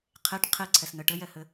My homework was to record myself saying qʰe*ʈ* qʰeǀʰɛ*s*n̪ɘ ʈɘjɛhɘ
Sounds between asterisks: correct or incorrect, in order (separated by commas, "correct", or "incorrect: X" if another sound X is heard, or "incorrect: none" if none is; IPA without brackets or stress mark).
correct, correct